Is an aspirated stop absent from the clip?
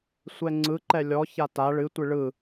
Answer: yes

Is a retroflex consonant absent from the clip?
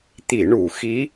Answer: no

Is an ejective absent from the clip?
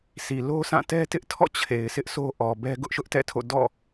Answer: yes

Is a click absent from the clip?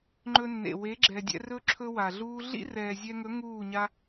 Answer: no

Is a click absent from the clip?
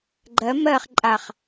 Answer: no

